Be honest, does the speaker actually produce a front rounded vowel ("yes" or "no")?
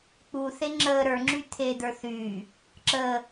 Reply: yes